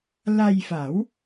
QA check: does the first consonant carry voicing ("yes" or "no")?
yes